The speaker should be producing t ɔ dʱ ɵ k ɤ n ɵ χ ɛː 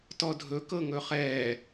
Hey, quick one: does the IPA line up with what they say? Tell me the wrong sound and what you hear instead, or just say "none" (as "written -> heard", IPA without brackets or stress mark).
n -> ŋ